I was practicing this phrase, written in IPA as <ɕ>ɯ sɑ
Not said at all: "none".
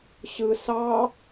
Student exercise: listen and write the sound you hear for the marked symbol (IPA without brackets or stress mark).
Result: ɕ